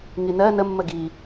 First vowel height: high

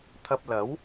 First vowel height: low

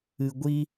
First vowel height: high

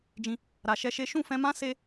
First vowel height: high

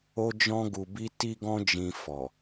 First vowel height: mid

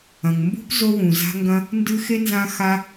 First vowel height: low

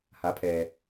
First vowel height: low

